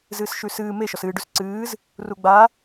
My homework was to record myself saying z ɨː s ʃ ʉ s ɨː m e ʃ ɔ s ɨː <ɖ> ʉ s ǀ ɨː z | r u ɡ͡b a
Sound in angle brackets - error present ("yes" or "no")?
no